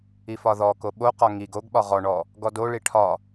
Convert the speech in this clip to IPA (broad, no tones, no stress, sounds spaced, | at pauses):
i f ɒ ð ɔ k o ɓ o q ɒ ŋ i ɡ o ɡ ɓ ɒ ʁ ɔ ɳ ɔ | ɡ ɔ d o ɭ i ʈʰ ɒ